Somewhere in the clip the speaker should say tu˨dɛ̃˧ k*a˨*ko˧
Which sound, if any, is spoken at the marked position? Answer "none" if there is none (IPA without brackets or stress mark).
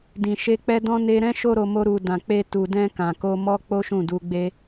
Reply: ã˨